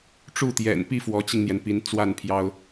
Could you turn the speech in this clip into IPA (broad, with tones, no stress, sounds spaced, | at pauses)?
ʈ͡ʂ u˥˩ t̪ j ɛ̰˨˩ n p i˥˩ f w ɔ˧˥ t͡ɕ i˧ ŋ n̪ j ɛ˩ n p i˧˥ n t͡s w a˥˩ n pʰ j ɑ˥ ʊ̯